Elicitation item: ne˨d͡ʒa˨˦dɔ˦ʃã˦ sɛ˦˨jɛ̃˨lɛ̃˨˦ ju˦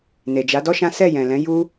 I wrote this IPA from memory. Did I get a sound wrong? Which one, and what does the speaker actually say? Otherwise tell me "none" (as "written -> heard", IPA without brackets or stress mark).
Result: none